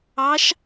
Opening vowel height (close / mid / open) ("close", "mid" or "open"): open